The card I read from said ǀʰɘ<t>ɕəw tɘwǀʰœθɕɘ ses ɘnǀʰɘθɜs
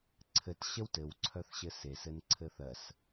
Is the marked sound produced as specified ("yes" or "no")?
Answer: yes